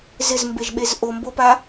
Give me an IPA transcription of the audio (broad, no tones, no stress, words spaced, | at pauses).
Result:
zɪzmbeʒɓez ʔombopa